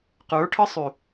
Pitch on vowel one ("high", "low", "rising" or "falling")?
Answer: rising